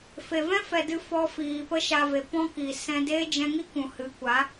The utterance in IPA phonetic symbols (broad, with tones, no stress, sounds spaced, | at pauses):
f e˨ v ɛ̃˦ f ɛ˨ d ɨ˧ f ɔ˧ f iː˨ p ə˦ ʃ a˧ v e˨ p ɔ̃˦ k i˨ s ɛ̃˧ d eː˦ d͡ʒ ɛ̃˧ ŋ i˦ k ũ˨ h ɨ˨˦ kʷ a˨˦